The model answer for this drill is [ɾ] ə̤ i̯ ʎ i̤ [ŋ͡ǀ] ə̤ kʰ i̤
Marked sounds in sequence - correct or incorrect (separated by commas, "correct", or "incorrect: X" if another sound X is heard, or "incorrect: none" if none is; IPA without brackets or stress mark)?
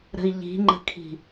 correct, incorrect: ŋ͡ǃ